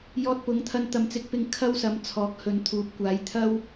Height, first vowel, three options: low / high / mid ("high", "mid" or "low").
mid